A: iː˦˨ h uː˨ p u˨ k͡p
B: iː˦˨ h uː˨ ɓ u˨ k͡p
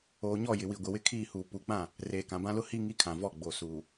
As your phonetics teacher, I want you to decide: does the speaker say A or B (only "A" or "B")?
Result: A